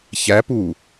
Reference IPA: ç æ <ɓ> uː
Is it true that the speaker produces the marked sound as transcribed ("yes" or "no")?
no